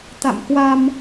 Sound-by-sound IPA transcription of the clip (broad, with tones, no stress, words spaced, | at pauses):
t̪a̰˧˨mkwa˧m